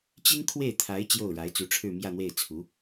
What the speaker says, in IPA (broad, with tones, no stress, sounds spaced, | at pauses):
t͡ɕ i˥ n kʰ w e˥˩ ɪ̯ t̪ʰ a˧˥ ɪ̯ t͡ɕ j o˥˩ ʊ̯ ɻ a˧˥ ɪ̯ t͡s u˧˥ ʈ͡ʂʰ ɻ̩˥˧ m j ä˥˧ n̪ w e˥˩ ɪ̯ t͡sʰ u˧˥